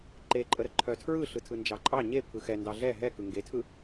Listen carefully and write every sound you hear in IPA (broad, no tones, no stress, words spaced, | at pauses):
ǃeǃʼəɾə ǃʰœtʰɹɯ ɬɯtʰɯnd͡ʒɑǃʼɑ ɲe pʰɯxɛ ndɑɮɛ ɦɛkɯ ŋɡetʰɯ